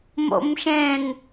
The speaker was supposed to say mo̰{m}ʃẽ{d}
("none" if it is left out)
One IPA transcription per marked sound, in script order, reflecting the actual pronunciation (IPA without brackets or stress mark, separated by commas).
m, n